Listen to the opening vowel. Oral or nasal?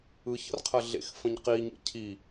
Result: oral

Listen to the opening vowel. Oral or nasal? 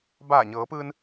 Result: oral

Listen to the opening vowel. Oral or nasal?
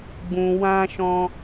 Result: nasal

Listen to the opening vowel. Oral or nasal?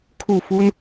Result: oral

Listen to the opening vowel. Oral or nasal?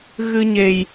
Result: oral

